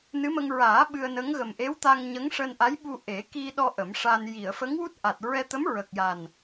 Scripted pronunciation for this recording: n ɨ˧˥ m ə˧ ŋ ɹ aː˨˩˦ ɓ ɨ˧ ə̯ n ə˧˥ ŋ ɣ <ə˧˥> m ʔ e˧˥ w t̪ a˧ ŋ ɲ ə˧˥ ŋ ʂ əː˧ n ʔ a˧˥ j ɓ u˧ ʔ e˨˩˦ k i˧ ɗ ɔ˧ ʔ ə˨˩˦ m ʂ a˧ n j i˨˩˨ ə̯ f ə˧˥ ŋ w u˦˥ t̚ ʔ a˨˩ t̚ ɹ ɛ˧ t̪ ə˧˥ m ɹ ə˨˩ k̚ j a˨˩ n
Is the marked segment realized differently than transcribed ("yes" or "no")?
yes